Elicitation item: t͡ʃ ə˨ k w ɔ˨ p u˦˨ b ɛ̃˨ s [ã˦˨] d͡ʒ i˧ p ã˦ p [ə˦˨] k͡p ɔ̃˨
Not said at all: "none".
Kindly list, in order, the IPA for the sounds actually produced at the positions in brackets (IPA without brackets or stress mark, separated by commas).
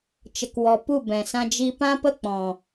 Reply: ã˧, ə˦˨